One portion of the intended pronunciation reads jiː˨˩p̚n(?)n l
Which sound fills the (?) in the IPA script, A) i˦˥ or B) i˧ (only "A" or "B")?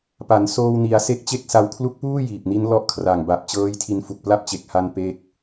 A